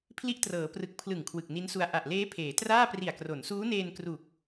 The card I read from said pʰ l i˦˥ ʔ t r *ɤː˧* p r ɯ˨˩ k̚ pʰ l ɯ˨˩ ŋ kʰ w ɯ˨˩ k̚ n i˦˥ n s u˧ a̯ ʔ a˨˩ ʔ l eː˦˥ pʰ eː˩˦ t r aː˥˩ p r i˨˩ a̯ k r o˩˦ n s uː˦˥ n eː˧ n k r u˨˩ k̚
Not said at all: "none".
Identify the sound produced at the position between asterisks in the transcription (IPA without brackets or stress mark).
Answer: ɤː˩˦